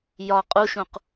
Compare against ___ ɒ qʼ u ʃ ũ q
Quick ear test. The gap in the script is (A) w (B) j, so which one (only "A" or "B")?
B